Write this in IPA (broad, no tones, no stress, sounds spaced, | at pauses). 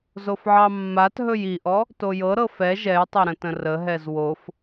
z o f ʕ ɑ mː a t ɦ ɵ j i ʔ ɔ | t o j ɤ ɾ ɤ f ɛ ʒ ɛ j tˤ ɛ ɾ ə̃ t ə̃ r ə ɦ ɛ z w o f